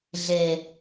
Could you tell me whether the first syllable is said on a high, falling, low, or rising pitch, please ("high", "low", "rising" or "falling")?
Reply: low